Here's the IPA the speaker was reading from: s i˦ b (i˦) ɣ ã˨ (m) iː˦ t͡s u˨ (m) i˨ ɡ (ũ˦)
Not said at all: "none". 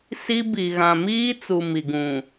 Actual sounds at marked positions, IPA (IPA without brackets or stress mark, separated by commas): i˨, m, m, ũ˨